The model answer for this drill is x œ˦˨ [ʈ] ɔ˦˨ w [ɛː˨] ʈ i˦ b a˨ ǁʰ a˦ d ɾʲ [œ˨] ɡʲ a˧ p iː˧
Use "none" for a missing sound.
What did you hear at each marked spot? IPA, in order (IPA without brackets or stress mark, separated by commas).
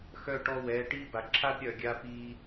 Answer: ʈ, ɛː˧, œ˨